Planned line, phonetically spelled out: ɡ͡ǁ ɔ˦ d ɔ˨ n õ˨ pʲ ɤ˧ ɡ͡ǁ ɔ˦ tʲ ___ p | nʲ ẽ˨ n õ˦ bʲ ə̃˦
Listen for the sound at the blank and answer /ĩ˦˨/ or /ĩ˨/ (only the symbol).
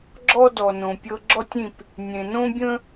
ĩ˦˨